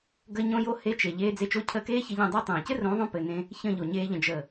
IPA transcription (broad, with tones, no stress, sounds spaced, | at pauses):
ɡ ə˦ ɲ õ˦ j o˦ h e˦ t͡ʃ e˨ ʎ eː˦ d͡z e˧ t͡ʃ o˦ cʰ əː˧ k eː˦ ç ɘ˧ ʎ ẽ˦˨ dˤ e˦ tˤ ẽː˨ c ɘ˦ r õ˨˦ ðˤ õ˧ p ɘ˨ n ẽ˧ | ç ə̃˦˨ ʎ o˨ ɲ eː˧ ʎ ə̃˨ d͡ʒ ə˨